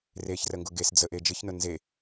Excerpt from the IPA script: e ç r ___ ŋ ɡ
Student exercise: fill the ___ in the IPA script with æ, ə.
ə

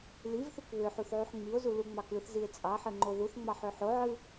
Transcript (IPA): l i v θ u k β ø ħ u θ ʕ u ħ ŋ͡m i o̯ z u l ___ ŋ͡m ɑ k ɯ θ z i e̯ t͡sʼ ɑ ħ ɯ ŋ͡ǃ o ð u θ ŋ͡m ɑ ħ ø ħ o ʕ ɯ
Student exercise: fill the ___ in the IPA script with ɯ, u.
u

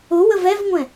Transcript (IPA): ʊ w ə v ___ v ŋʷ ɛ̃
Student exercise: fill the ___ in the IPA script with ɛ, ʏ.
ɛ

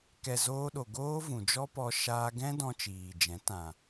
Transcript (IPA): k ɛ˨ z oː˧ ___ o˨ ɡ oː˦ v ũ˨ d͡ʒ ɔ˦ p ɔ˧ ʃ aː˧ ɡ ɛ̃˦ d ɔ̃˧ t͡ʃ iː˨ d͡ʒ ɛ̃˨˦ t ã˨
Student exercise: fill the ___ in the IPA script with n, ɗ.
ɗ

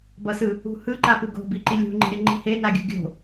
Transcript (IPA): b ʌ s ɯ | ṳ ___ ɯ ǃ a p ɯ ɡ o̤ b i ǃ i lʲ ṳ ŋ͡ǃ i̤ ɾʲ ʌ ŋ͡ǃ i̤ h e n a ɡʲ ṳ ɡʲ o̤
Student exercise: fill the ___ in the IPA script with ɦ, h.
h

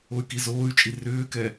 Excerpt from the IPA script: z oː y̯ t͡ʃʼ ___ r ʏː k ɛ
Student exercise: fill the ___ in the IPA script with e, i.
i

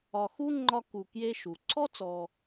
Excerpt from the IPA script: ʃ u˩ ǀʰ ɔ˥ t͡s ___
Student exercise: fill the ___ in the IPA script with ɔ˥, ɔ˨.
ɔ˨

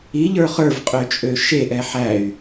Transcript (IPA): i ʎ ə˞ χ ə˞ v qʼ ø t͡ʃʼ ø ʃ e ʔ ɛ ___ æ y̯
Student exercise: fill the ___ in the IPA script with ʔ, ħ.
ħ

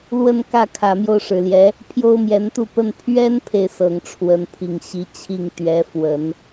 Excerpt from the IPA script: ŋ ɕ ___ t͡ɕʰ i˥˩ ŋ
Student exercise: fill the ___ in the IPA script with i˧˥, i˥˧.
i˧˥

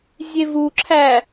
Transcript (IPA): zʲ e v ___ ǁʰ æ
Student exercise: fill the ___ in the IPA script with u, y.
u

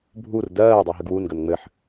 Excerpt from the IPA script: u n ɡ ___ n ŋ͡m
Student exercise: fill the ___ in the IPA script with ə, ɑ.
ə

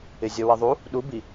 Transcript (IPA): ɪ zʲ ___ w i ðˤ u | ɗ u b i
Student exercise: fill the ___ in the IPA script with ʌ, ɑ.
ʌ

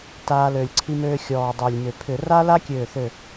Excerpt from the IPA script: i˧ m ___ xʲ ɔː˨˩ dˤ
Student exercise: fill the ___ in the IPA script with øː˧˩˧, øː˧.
øː˧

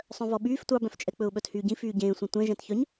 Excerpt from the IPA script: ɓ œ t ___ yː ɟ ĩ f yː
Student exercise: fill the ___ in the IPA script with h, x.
h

